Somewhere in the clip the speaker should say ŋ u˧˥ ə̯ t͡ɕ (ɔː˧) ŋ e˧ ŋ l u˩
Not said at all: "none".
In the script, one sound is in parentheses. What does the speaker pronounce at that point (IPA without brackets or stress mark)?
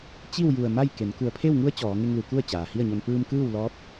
ɔː˩˧